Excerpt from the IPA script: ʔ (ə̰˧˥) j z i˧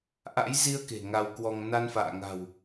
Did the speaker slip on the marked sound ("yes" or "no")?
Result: yes